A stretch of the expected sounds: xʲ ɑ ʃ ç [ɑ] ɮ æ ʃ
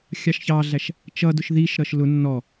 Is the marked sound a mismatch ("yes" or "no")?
no